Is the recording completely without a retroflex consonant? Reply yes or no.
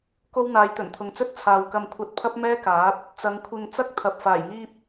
yes